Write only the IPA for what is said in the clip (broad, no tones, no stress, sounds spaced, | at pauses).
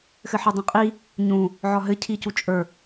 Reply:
x ɘ ħ ɘ dˤ ə̃ qʼ i | ɲ ũ | ʕ ɒ ɦ ɘ cʰ i c u t͡ʃʼ ə˞